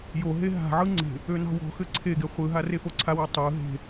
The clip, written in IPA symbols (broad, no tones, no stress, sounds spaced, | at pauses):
j o ɦ e ɦ a̤ ʕ ɯ ŋ͡ǀ e̤ | ø n ɑ̤ w ɔ̤ x ɘ ǀʰ e ɡ e χʷ ɯ ɦ a r e f o ǀʰ a w a tˤ ɯ ɦ e̤